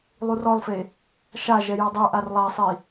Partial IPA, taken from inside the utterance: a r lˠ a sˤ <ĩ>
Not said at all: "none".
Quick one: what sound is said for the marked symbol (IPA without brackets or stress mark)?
i